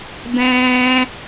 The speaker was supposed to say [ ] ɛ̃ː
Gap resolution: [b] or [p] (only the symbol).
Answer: b